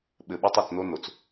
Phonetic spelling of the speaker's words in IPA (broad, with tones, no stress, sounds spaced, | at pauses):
ɓ ɘ˨ ɓ ɛ˦ tˤ i˨ t͡s n o˦ n o˨ t͡s